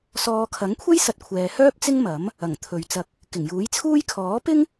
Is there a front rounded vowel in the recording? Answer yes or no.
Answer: yes